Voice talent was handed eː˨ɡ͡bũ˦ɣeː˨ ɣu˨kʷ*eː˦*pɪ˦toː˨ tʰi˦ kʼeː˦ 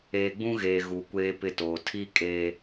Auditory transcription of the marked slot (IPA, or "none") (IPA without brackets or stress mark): eː˦